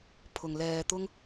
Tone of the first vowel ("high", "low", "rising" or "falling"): low